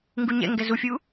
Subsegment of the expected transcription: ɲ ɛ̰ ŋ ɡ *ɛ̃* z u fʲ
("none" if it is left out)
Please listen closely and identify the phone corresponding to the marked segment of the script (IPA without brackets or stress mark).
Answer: ɛ